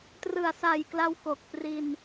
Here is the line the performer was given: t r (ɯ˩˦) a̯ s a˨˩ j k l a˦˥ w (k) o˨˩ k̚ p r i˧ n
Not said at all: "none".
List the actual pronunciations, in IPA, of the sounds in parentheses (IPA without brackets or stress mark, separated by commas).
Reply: ɯ˨˩, k